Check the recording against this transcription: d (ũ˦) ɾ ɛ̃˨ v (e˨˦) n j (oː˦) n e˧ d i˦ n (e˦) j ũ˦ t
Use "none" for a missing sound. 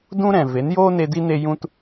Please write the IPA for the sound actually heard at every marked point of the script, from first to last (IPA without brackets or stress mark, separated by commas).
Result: ũ˦, e˨˦, oː˦, e˦